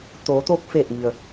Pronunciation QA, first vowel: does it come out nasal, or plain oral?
oral